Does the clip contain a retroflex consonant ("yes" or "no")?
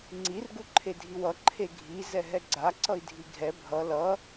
no